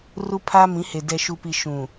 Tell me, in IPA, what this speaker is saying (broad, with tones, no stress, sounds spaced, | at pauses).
r u˦ pʰ aː˦ m ĩ˨˦ h e˨ d ɛ˨ ʃ u˨ p i˨ ʃ ũ˨